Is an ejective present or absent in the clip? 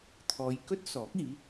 absent